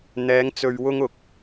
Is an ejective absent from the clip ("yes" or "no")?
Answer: yes